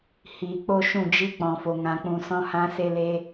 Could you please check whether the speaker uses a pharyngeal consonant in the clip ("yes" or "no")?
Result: no